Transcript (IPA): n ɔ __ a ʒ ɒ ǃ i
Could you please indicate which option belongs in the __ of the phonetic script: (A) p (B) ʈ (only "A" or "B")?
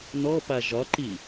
A